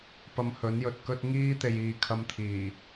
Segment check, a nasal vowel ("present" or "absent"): absent